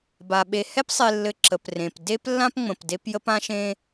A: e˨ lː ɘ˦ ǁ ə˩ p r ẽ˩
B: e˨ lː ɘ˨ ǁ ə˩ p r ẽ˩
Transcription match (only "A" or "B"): B